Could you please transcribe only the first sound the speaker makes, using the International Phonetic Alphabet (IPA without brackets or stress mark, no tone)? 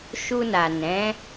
ʃ